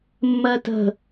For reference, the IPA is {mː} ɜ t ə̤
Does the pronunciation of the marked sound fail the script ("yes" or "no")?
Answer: no